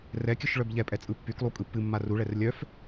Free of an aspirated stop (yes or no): yes